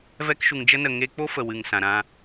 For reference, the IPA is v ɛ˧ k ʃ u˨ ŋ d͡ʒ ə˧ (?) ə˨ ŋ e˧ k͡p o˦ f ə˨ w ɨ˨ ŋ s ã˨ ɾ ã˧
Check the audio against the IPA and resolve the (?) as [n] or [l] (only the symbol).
n